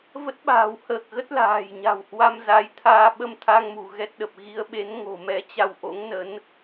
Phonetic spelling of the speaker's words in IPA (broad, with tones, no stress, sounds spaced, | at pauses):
v ə˦˥ t̚ ɓ a̤ː˨˩ w h əː˨˩ k̚ ɣ ə˦˥ t̚ l a̤ː˨˩ j ɲ a̤˨˩ w h w a˧ m z a˨˦ j t̪ʰ aː˧ ɓ ə˧ m t̪ʰ a˧ ŋ m ṳ˨˩ ɣ ɛ˦˥ t̚ ɗ ə˨˩ p̚ ɣ i˨˦ ə̯ ɓ e˨˦ n ŋ o̤˨˩ m ɛ˨˦ t͡ɕ a˧ w ʔ o̰˧˥ ŋ n ə˨˦ n